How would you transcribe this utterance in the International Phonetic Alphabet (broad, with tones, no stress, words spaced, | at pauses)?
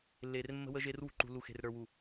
lːe˨rmːə̤˦wə˦ʒe˦r wṳ˦ǃṳ˨ lu˨xe̤˨rɾə˞˨wu˨